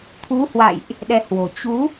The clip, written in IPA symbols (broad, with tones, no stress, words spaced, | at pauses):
t̪ʰu˨˦hwa̰˧˨jʔ | ɗɛ˧hwo̤˨˩ t͡ɕu˨˦